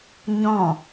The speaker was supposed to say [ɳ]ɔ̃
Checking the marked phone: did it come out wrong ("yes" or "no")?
yes